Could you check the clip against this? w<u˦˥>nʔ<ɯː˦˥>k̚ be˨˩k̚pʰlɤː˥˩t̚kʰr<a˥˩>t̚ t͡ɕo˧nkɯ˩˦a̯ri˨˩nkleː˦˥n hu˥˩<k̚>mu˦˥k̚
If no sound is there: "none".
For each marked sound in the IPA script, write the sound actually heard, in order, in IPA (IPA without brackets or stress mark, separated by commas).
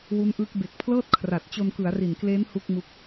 u˦˥, ɯː˦˥, a˨˩, k̚